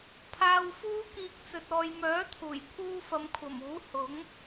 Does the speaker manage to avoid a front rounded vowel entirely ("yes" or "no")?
no